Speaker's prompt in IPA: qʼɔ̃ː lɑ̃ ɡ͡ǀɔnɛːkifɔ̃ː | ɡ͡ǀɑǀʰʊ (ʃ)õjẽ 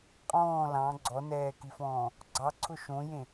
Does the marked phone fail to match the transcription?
no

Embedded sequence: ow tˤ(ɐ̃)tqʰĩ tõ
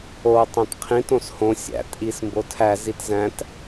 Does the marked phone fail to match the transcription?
yes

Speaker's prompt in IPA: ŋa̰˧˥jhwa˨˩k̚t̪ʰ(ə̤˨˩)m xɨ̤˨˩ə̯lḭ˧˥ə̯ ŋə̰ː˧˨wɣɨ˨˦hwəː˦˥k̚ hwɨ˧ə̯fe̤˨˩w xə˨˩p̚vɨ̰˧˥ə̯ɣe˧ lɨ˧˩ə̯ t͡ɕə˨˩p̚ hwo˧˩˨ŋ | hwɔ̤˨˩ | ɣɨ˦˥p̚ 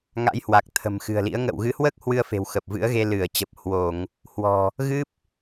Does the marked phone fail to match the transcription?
no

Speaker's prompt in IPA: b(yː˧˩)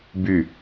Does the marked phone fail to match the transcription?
yes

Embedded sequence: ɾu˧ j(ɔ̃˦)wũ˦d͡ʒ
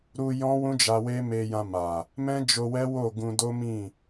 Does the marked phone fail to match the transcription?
no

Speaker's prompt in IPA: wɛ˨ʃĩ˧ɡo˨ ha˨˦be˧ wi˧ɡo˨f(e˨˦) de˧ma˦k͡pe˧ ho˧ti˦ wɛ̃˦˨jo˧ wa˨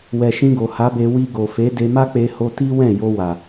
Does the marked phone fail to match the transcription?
no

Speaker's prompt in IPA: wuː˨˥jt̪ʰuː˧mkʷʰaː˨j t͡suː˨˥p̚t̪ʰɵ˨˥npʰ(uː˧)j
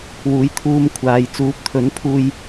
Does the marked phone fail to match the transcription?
no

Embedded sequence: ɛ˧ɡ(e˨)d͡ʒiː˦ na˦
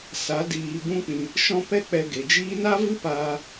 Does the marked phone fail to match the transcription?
no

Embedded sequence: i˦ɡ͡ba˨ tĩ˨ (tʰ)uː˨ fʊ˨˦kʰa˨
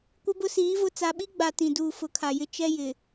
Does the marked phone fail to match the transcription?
yes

